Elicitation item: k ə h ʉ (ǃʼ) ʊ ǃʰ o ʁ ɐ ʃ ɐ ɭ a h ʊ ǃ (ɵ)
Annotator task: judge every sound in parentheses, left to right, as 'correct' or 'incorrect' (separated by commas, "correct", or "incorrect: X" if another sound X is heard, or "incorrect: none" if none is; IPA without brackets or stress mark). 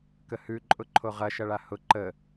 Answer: correct, incorrect: ə